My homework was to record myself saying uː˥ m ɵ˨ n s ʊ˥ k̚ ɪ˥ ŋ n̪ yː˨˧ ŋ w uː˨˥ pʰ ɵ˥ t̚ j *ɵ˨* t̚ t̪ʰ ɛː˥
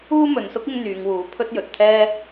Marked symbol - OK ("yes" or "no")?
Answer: yes